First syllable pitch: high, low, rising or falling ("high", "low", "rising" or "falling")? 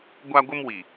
high